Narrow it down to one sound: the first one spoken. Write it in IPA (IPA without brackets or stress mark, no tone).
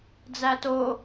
d͡z